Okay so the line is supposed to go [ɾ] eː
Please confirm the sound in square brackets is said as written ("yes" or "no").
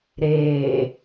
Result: yes